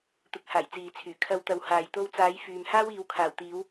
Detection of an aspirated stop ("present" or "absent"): present